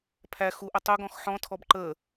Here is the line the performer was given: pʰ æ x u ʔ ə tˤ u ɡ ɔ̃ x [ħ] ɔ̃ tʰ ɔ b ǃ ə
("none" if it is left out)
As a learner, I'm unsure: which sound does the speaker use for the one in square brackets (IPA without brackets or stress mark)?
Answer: ħ